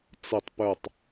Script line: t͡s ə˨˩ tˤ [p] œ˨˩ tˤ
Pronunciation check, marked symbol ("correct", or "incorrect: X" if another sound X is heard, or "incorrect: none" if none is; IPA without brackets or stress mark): correct